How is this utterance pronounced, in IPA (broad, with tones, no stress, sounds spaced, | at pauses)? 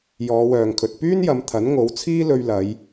j ɔː˨˧ w œː˨ ŋ kʰ ɵ˨ t̚ p yː˥ n j ɐ˨˧ m t̪ʰ ɐ˨˥ n ŋ o˨˥ w t͡sʰ iː˥ l ɵ˧ ɥ l ɐ˨˧ j